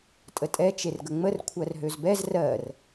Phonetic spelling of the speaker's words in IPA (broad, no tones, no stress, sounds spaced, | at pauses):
tʼ ə tʼ ɛ t͡ʃ e r ɡ ə ŋ͡m ə r kʷʰ ɜ r ɦ ø z b ɛ z r ɜ r